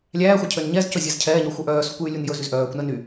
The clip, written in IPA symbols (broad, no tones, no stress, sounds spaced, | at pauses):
lʲ æː xʷ æ cʰ ø n ɲ ɛ z c ɵ zʲ ɛ z cʰ ɛː ɲ ɔ xʷ œ ʔ œː s u kʷ j y lʲ u n j ɵ z y z ʔ œː kʷ n ɛ n y